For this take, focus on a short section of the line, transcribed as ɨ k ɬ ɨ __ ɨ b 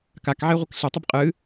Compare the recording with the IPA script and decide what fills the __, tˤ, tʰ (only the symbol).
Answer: tˤ